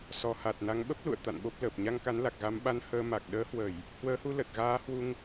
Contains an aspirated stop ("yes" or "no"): no